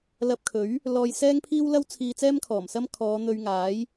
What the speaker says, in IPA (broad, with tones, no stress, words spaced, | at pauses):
lɐ˧p̚kʰɵ˨˥ɥ | lɔː˧jsɛː˥ŋpʰiː˥wlɐ˥w t͡sʰiː˧t͡sɛː˥mkʰɔː˨˩msɐ˥m kʰɔː˨˧n̪ɵ˧ɥŋaː˨˥j